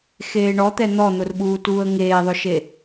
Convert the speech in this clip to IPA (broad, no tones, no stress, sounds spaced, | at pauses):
x eː ɳ ɔ t̪ ɛ n̪ ɔ n̪ ʊ r ɓ uː t uː ə̯ ŋ eː ðˤ ʊ ʃ e